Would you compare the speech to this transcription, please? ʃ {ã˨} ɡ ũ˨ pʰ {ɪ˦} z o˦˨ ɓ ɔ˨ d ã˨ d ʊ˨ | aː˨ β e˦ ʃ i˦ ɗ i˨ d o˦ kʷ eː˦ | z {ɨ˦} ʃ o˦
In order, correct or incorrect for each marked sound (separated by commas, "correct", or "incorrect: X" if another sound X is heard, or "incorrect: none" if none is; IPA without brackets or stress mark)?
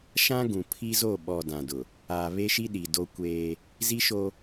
incorrect: ã˦, incorrect: i˦, incorrect: i˦